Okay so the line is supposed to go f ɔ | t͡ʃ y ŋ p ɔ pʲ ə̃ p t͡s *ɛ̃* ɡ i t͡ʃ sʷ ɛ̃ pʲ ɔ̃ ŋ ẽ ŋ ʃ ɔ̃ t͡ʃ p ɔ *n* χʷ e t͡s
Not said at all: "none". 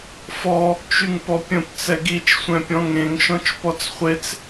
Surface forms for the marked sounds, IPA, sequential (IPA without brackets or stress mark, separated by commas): ɛ, t͡s